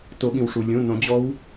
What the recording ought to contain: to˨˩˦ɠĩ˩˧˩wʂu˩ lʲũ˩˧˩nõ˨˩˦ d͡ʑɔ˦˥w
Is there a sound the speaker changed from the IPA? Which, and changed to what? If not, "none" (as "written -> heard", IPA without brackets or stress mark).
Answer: ĩ˩˧˩ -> ĩ˩